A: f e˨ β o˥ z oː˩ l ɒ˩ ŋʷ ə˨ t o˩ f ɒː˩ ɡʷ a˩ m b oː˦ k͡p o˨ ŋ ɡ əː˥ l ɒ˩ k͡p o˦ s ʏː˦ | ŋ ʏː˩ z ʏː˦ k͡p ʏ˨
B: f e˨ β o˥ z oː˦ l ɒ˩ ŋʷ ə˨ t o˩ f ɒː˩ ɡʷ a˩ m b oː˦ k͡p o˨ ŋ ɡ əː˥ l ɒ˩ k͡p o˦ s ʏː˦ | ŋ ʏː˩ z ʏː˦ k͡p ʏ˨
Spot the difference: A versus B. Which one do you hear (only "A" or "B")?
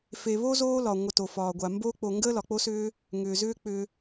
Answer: B